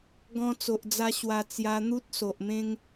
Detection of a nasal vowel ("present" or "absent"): present